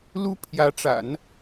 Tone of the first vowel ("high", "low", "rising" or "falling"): high